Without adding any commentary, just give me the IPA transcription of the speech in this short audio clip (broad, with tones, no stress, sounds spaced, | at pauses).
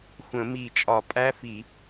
xʷ ə̃˧˩˧ m i˧˩˧ t͡ʃʼ ɒ˧˩˧ pʼ æ˦˥ f i˧˩˧